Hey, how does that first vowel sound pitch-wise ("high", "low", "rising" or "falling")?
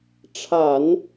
low